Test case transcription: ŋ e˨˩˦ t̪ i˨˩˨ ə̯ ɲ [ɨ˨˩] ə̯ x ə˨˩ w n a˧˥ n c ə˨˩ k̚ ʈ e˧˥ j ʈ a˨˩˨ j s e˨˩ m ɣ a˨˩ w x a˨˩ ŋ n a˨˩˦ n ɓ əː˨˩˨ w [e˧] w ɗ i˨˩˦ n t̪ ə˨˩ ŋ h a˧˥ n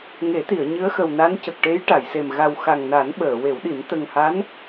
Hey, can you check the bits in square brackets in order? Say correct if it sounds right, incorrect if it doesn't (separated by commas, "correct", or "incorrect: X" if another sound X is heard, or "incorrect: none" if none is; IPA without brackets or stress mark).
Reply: incorrect: ɨ˧˥, incorrect: e˨˩˦